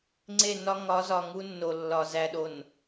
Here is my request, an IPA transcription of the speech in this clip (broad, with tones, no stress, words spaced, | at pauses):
ŋ͡ǀe˦˨nɒ˦ ŋɒ˨˦zɒ˨ ŋu˦nːo˨lːɒ˨ zæ˨ɗo˨n